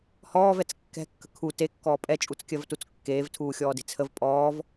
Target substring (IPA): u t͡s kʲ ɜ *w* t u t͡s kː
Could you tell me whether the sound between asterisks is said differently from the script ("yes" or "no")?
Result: yes